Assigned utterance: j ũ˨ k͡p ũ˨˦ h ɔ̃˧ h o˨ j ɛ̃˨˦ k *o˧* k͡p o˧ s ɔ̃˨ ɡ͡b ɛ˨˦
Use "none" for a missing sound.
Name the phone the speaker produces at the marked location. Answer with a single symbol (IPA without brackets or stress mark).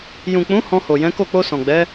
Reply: o˦˨